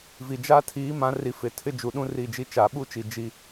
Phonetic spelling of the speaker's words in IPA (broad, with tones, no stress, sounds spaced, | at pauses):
v i˨ d͡ʒ a˦ tʰ iː˨˦ m ã˨˦ r i˨ f ɪ˨ tʰ ɪ˦ d͡ʒ u˨ ɗ ũ˦ r i˦˨ d͡ʒ i˦ t͡ʃ a˨ ɓ u˦ t͡ʃ i˨ d͡ʒ i˦